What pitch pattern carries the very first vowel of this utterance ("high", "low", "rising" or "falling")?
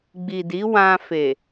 low